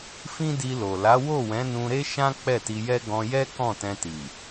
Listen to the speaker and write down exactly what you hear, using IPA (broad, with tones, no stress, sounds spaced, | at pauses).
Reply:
f ĩ˦ d i˧ l o˨ l a˨˦ w o˦˨ w ɛ̃˨˦ n ũ˧ ɾ e˦ ʃ ã˦ k͡p ɛ˦˨ t i˧ j ɛ˦ ɡ ɔ̃˧ j ɛ˦ k ɔ̃˦˨ t ɛ̃˧ t i˨